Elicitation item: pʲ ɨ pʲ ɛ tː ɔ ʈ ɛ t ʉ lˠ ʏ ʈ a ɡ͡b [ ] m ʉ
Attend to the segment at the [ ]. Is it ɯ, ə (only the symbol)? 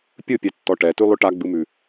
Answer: ɯ